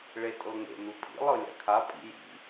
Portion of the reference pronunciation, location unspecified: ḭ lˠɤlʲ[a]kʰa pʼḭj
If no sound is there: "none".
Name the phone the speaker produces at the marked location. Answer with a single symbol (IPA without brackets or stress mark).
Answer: a̰